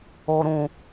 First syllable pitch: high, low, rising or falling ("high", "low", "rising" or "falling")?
low